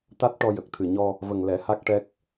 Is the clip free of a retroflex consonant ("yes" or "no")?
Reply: no